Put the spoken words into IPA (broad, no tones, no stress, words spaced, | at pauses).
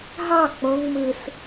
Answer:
ɦɑ k͡põŋ mɯs